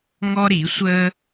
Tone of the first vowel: high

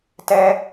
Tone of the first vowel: high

